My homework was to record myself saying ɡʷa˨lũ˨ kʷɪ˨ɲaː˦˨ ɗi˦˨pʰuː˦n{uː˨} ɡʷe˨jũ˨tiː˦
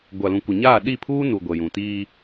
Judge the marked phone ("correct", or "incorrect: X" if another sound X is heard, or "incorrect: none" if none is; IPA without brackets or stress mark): incorrect: u˨